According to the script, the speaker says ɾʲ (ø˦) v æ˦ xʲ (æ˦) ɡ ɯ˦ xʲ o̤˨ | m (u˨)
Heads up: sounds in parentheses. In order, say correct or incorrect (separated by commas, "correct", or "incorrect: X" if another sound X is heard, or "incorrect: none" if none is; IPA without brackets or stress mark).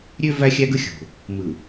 correct, correct, incorrect: ɯ˨